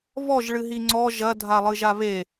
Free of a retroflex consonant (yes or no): no